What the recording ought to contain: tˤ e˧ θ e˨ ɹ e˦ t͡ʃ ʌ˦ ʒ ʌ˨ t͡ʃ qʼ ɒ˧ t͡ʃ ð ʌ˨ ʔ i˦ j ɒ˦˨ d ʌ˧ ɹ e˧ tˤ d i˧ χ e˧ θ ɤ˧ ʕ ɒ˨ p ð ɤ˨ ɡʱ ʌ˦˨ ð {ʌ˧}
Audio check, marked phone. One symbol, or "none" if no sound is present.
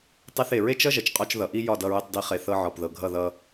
ʌ˧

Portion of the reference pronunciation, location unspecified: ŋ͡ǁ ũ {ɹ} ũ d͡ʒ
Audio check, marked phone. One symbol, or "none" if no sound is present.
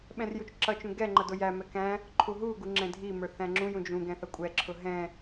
j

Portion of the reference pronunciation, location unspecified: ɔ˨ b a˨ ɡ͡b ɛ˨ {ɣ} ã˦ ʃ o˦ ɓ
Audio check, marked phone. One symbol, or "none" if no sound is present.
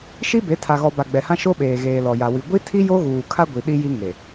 h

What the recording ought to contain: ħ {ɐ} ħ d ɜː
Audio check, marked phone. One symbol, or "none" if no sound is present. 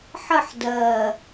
ə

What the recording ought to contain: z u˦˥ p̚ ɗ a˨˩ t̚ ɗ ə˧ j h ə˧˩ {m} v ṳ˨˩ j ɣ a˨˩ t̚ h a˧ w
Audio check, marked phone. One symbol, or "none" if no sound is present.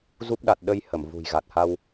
m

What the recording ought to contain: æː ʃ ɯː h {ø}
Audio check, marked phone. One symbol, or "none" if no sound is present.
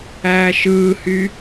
y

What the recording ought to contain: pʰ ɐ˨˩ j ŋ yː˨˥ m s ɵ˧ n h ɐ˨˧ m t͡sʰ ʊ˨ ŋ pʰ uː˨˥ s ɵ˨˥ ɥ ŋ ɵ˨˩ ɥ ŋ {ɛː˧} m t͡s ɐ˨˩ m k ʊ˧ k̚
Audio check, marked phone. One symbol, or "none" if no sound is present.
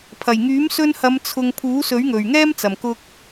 ɛː˥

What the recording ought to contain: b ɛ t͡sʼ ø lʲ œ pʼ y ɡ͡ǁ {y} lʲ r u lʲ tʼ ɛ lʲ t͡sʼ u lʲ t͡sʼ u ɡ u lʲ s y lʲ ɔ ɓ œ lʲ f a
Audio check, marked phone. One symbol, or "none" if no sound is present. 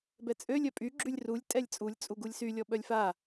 y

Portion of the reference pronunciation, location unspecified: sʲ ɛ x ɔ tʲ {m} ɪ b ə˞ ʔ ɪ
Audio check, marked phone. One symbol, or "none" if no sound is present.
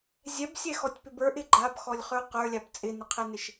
p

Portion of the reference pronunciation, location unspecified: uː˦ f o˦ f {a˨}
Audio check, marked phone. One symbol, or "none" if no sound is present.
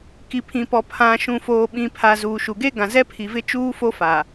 a˨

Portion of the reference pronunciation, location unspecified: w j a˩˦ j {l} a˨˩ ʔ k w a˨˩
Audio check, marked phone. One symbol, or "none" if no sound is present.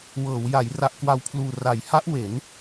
r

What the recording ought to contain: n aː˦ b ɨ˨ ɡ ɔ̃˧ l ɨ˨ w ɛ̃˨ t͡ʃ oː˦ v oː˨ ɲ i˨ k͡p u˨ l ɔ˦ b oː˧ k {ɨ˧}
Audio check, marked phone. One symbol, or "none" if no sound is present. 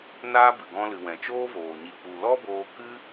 ɨ˦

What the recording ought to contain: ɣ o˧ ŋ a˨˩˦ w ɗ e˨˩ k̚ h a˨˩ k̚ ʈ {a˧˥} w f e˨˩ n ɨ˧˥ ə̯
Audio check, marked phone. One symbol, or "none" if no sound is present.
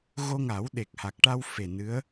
a˧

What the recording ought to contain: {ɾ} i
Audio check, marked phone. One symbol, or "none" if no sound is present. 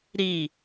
ɾ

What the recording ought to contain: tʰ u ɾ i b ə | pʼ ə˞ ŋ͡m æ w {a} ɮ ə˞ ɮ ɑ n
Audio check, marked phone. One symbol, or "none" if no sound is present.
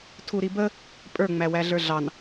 æ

